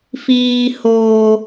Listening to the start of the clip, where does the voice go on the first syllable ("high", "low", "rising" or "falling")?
high